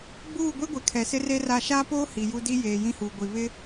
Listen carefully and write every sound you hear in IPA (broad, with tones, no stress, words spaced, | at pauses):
ɡ͡buː˦˨ɡʷe˦ɡʷɛ˨ kʰɛ˨sɪ˦re˦ra˦˨ ʃaː˦poː˦ hi˨ju˦ di˦jeː˨ jĩ˦huː˨ɡʷi˨ βɪ˦